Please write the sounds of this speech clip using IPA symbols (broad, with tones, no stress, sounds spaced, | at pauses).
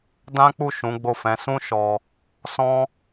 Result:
d ã˦ k͡p u˦˨ ʃ ũ˨˦ ɡ͡b o˦˨ f ɛ̃˨˦ s ũ˦ ʃ ɔ˧ | s ɔ̃˦